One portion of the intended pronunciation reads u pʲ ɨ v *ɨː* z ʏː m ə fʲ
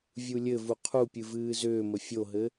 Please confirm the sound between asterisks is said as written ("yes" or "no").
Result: yes